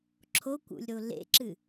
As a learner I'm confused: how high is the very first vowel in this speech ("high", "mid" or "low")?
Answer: mid